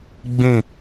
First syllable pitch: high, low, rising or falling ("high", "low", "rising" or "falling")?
falling